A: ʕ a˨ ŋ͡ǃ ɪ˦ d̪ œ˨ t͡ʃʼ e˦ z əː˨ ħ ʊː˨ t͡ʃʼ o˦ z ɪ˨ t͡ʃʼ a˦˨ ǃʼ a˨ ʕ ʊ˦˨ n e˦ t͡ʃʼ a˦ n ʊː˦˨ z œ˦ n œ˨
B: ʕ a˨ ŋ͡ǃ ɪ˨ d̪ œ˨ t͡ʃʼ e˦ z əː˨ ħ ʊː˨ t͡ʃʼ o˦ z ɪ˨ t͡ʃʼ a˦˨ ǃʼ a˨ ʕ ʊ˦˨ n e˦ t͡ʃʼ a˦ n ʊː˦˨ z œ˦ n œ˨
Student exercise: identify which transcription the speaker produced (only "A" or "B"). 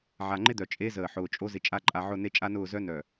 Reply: A